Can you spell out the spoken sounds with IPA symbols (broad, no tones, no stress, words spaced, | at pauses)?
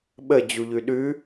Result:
ɓəd͡ʑuʎʉ ɗʉ